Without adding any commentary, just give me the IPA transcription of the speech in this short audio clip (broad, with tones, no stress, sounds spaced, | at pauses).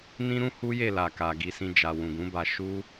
n ĩ˦ ɾ ũ˦ h u˦ j e˦˨ l a˨ k a˨ ɡ i˧ s ĩ˧ d͡ʒ a˨ w ũ˨ ɡ ũ˨˦ b a˧ ʃ u˦